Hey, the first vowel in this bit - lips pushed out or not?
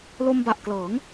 yes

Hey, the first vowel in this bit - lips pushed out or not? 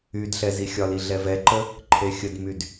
yes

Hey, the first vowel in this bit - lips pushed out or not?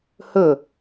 yes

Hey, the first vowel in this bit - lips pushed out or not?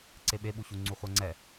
no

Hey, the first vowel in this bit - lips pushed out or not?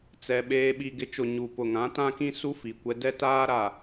no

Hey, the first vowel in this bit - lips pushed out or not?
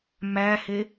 no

